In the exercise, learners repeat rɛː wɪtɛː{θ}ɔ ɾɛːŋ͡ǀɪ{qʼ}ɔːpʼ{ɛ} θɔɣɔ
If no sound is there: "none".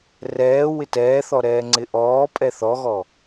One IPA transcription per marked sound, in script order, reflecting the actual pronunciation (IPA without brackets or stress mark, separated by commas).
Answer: θ, ʔ, ɛ